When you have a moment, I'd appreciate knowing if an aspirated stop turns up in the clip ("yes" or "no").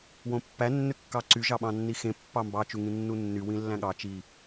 no